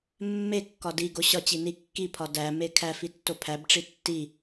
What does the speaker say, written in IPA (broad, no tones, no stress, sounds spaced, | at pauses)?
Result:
mː e kː ɒ d i ɡ o ɕ ɒ t͡ɕ i n i kː i pʰ ɒ d æ m e kʰ æ f i tː o pʰ æ b ʈ͡ʂ i tː i